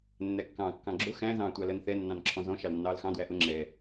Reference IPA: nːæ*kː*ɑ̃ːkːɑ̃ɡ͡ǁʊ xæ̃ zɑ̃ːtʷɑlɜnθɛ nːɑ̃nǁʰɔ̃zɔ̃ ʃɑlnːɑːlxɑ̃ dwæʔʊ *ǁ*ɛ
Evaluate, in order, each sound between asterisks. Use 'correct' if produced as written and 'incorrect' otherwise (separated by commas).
correct, incorrect